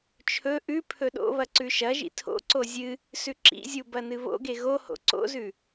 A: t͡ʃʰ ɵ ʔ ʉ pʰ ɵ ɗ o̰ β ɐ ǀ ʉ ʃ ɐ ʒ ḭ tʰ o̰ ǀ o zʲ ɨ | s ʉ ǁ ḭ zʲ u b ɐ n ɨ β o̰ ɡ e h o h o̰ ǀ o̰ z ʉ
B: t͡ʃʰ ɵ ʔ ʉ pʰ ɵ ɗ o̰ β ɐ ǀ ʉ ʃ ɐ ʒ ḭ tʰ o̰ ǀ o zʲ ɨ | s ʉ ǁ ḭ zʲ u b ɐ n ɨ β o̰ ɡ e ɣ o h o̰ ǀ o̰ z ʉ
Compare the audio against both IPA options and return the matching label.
B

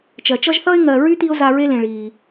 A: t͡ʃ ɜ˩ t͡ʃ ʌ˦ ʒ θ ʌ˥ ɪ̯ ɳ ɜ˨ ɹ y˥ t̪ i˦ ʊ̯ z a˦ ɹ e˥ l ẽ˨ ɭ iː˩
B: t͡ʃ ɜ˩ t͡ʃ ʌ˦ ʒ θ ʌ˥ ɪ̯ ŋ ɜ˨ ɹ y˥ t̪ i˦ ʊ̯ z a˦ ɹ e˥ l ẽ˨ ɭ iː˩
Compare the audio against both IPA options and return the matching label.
B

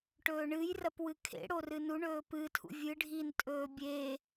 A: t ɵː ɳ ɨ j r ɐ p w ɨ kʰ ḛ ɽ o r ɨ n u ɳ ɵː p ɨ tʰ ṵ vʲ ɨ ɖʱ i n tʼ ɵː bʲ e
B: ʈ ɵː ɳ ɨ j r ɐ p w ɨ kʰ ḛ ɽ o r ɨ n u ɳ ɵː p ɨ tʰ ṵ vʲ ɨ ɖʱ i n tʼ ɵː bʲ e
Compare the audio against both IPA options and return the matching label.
B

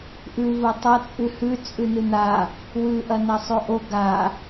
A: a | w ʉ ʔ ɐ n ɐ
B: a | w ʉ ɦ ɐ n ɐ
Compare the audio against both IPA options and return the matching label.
A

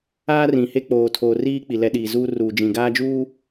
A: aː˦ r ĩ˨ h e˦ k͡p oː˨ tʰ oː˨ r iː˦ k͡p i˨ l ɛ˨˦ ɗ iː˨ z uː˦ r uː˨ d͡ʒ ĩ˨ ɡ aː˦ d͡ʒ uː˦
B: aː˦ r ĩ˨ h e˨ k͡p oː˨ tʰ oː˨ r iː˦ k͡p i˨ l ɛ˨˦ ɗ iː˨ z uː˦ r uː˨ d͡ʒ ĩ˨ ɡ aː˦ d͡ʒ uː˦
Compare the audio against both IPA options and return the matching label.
A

